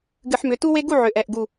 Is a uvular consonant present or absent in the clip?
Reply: absent